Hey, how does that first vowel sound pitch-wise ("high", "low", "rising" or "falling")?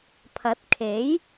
rising